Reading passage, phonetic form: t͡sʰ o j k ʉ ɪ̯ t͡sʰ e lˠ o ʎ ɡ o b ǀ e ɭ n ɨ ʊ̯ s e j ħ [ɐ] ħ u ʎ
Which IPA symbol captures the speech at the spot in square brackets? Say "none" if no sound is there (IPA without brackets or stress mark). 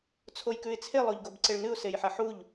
ɐ